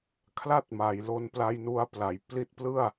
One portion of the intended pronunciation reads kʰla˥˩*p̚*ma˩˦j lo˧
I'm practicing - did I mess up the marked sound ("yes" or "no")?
yes